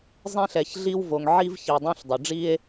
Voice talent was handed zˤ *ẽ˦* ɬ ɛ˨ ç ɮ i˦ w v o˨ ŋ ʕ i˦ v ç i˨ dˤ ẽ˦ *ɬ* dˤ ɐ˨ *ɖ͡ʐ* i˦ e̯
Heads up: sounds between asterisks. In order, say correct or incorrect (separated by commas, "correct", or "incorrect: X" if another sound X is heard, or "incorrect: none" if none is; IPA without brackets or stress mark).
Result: correct, correct, correct